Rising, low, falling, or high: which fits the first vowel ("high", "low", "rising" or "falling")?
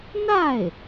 falling